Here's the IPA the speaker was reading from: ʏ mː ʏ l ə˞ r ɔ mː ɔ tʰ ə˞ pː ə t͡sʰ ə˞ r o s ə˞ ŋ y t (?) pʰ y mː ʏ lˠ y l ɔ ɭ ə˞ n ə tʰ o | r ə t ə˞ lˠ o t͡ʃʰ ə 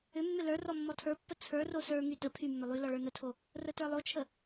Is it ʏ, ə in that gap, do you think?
ə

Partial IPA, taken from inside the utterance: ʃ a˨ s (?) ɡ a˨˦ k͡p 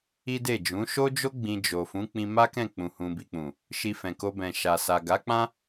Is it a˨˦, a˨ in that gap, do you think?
a˨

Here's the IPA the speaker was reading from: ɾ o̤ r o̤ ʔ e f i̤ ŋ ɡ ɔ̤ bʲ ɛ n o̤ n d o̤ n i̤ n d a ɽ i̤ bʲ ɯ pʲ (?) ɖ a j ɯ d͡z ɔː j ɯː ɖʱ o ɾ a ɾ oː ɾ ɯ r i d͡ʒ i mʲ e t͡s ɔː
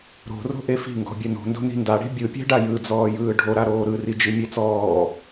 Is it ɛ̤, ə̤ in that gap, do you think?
ɛ̤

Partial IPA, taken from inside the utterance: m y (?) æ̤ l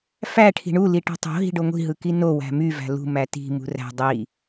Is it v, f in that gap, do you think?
v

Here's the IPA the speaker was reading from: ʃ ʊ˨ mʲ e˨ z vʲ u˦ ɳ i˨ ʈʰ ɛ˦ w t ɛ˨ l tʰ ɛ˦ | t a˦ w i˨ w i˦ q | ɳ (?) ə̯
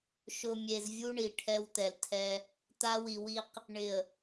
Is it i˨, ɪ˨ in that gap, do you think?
ɪ˨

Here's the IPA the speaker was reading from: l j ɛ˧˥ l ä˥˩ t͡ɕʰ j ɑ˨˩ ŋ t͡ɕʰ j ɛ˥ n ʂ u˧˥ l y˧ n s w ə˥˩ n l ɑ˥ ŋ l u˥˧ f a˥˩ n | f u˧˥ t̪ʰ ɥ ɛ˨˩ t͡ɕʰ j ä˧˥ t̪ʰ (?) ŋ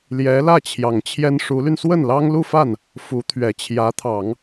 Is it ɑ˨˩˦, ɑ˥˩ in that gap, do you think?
ɑ˨˩˦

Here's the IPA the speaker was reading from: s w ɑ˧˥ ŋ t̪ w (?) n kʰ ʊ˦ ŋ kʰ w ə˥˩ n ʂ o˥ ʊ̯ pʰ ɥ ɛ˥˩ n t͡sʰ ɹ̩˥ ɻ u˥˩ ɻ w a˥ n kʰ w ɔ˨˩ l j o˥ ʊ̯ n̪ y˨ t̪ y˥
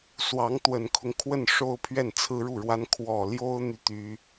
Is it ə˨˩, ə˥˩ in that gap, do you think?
ə˨˩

